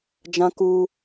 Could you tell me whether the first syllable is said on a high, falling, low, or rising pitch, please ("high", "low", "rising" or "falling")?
high